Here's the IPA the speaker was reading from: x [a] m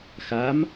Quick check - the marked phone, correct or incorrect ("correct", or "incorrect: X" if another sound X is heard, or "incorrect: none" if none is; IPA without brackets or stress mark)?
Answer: correct